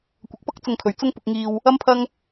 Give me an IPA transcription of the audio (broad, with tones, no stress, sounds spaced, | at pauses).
kʷ ɐ˨ k̚ p ɐ˥ k̚ t͡s ʊ˧ ŋ kʰ ɵ˨ ɥ t͡s ʊ˥ ŋ p ʊ˧ k̚ ŋ iː˧ w | ɐ˥ m pʰ ɐ˥ ŋ